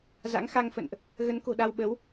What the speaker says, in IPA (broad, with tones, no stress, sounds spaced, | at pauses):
z a̰˧˥ ŋ x a˧ ŋ f ə̰˧˨ n ʔ | ɣ ə˨˦ n k o̤˨˩ ɗ a˧ w ɓ ə˨˦ w